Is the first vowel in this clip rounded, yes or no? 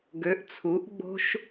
yes